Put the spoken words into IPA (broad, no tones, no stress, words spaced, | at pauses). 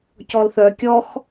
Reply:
cɔlθœ kʲɔx